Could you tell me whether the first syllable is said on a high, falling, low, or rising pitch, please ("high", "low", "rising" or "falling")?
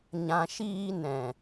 low